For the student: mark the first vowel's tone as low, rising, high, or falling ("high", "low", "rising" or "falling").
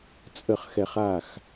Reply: falling